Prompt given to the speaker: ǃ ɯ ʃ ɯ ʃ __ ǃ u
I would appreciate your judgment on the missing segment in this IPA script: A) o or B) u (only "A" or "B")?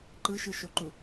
A